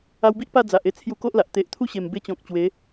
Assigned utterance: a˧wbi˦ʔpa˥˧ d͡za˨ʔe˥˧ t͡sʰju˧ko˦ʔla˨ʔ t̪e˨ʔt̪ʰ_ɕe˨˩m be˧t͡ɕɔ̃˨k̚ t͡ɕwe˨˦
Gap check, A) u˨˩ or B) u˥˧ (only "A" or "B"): B